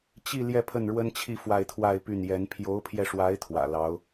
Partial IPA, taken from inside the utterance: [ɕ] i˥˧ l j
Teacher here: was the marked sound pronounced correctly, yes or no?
no